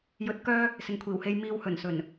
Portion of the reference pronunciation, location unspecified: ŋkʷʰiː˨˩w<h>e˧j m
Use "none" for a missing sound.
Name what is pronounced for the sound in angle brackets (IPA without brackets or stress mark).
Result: h